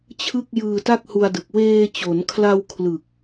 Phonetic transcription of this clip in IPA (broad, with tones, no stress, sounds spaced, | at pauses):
t͡ɕʰ ɯ˥˩ k̚ j ɯː˧ t a˥˩ k̚ h u˧ a̯ d ɯ˨˩ k̚ w eː˧ t͡ɕ o˩˦ n kʰ l a˧ w kʰ l ɯ˨˩ k̚